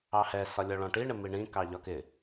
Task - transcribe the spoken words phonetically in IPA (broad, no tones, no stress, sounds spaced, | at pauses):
ɑ h ɛ s ɒ lʲ ɔ ɭ ɔ̃ ʈ i ɳ ɪ m i ɳ ĩ k ɑ ʎ ɒ k ɪ